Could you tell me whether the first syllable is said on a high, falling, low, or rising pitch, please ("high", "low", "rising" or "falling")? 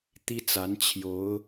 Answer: high